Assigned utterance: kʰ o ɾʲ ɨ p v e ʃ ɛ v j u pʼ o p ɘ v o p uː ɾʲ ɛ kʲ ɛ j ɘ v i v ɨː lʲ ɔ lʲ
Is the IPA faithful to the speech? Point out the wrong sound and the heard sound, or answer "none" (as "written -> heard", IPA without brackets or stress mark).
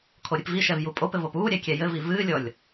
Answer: e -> i